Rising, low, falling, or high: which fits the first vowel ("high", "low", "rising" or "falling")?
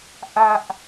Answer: high